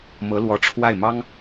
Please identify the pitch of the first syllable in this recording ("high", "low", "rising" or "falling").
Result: rising